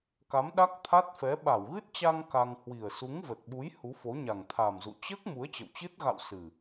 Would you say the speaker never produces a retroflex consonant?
yes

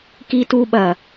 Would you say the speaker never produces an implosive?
no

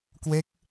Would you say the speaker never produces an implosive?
yes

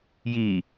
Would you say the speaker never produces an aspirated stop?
yes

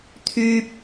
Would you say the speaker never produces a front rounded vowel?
no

